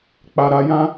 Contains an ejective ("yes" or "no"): no